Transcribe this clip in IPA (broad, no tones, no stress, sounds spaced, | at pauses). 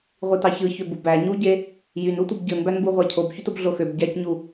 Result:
ʁʷ i t ɑ ç ɯ ç ø b u b æ ɲ u ɟ e | j y n u tʷ ɯ b ɟ ɯ n b æ n b u ʁʷ æ cʰ o b ç y t o b ɮ o x ø b ɟ æ c ɲ u